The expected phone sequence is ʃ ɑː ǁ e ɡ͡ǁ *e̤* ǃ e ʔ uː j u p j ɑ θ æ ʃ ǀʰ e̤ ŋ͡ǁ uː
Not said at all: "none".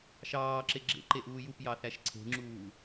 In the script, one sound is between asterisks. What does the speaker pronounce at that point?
ḛ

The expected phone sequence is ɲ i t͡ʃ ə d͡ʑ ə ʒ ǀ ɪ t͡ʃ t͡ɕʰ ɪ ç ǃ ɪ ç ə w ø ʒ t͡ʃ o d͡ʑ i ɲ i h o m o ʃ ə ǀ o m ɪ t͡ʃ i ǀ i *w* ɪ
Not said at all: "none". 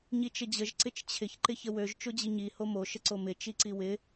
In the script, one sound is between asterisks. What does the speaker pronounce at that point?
w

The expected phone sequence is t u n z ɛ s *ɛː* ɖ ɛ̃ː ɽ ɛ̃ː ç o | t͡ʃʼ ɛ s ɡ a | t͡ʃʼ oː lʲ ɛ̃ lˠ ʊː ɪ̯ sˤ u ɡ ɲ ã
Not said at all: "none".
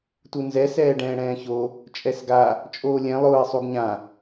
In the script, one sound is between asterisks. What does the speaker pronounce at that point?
ɛː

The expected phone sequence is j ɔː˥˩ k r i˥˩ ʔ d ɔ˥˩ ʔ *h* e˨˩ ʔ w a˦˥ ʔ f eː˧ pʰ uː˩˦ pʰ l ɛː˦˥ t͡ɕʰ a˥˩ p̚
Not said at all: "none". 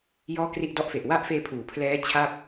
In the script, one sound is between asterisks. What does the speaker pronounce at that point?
f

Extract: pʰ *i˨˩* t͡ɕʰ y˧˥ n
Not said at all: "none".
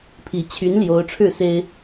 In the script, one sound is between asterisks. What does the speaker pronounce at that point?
i˧˥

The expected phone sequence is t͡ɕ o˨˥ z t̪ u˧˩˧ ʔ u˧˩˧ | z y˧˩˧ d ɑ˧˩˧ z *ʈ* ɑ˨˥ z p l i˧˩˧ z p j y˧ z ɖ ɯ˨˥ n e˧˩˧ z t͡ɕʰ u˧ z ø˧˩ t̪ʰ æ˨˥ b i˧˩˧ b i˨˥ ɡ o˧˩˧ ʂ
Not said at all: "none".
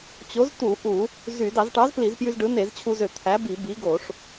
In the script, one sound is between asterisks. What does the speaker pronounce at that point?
ʈ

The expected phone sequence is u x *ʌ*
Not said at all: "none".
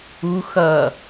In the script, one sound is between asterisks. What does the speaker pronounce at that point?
ʌ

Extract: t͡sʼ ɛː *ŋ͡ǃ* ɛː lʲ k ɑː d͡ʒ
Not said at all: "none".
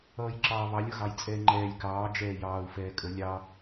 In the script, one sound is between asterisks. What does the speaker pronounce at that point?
ŋ͡ǃ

